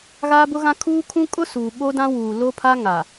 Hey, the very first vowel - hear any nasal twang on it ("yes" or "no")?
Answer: no